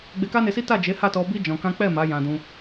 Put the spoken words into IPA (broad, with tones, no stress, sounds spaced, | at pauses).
ɡ͡b e˧ k a˦ n e˧ s i˦ t a˦˨ d͡ʒ e˨˦ h a˦˨ t ɔ˧ b i˦ d͡ʒ ɔ̃˧ k ã˦ k͡p ɛ˦˨ m a˨˦ j ã˧ d ũ˧